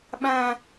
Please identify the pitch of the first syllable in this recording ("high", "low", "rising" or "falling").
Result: high